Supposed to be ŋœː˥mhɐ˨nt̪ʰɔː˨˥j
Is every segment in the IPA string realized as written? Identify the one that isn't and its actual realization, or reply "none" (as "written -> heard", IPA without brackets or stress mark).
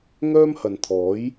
none